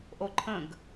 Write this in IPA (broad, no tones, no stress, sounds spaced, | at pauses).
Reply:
ʔ o ǃʰ ə̃ ɡ